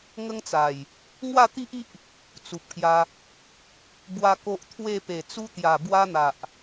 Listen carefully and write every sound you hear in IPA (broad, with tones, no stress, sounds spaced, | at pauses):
ŋ ə˦ ŋ t͡s a˨˩ j | ŋ w a˥˧ t̪ i˦ ʔ i˦ ʔ | t͡s u˨ p̚ k j a˧ | b w a˦ k o˦ ʔ t̪ʰ w e˥˧ p e˨˩ t͡s u˧ t̪ j a˨˩ b w a˧ n̪ a˨ ʔ